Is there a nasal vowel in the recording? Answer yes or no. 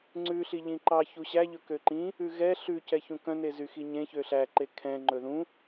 yes